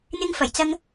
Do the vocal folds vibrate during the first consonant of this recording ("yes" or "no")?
yes